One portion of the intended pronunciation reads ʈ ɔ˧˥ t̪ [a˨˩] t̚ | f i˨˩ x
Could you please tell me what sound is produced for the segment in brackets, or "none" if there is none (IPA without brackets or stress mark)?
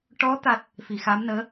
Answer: a˦˥